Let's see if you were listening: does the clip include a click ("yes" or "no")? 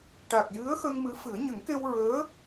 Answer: no